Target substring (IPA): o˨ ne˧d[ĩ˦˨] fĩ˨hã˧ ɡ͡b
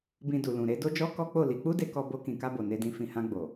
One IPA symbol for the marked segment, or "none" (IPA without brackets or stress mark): ĩ˧